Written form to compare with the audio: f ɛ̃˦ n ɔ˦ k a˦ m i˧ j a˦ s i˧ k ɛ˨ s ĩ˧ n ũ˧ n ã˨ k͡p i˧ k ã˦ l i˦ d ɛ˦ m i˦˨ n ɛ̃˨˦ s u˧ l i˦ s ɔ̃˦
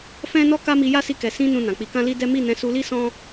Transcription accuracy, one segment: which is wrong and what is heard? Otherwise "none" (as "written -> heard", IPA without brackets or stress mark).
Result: none